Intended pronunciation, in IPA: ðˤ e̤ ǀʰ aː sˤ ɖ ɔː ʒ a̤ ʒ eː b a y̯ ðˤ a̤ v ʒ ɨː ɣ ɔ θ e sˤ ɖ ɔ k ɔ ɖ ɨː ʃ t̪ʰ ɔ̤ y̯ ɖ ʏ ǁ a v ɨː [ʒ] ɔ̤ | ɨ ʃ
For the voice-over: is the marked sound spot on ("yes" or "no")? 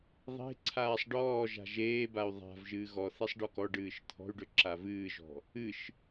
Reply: yes